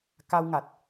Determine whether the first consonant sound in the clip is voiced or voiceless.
voiceless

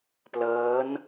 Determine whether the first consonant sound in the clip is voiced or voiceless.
voiceless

